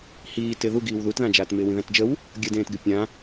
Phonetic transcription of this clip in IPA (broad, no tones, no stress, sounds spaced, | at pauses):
h iː t ɪ ð u ɡ iː w ð u t ð ã d͡ʒ aː t m ɪː w ĩ ð æ̃ t d͡ʒ ə w | ɡʲ ə d ẽː t ɡ ɪ pʲ ã